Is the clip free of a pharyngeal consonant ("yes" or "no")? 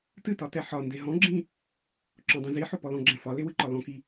no